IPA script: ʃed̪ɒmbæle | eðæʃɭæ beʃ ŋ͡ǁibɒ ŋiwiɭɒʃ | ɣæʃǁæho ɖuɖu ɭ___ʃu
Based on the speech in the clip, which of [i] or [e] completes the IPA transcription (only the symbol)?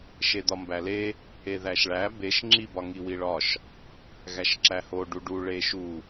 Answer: e